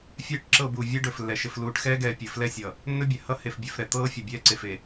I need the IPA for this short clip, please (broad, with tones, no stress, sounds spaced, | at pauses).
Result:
fʲ ɛː˦ ʈ ǁ ɤ˦˨ b uː˨ vʲ ɛ˦ ɖ ɵ˨ f lː ɛ˨ ʃ ɘ˨ f l uː˨ ʈ x ɛː˦ ɡ ɛː˨ pʲ ɘ˨ f l ɛ˦ sʲ ʌ˨ | nː ɵ˦ bʲ ɛ˨ h ʌ˦ h e˨ f bʲ e˨ f ɾ ɛ˨ t̪ ɤː˦ fʲ ʌ˨ bʲ ɛː˦ ǀ e˨ f e˨